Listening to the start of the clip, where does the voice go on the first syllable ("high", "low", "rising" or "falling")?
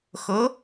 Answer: rising